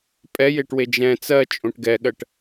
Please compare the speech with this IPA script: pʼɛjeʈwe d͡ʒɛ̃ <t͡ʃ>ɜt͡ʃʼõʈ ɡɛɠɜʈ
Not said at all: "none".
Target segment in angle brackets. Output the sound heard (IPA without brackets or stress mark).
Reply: t͡s